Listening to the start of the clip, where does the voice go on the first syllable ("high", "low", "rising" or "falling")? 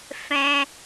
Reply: high